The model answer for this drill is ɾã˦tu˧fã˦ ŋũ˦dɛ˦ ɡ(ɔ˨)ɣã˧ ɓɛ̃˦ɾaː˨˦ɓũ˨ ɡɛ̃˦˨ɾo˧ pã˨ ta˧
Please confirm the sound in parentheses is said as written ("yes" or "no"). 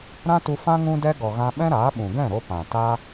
yes